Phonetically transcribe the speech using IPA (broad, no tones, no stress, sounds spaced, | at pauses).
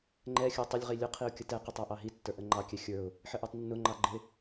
ŋ͡ǃ ɛ xʲ ə˞ tˤ ɪ lʲ ʁ i lʲ ʊ qʰ i ʊ̯ kʲ ə t ɛ q ɪ tˤ æ ʔ ɑ ɦ i tː ə˞ ʔ ə ŋ͡ǃ ɑ kʲ ɛ xʲ ə˞ ʊ̯ | ħ ə ʔ ə˞ tˤ nː ʊ ŋ͡ǃ ɑ ɡ͡ǃ ɪ